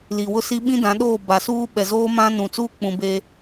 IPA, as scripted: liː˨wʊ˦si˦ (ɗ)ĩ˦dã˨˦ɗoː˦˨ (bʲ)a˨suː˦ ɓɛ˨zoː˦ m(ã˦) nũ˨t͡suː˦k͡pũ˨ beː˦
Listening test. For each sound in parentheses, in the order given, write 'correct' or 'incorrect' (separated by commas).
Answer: incorrect, incorrect, correct